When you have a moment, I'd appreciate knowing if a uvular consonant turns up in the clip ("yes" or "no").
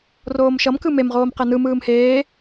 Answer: yes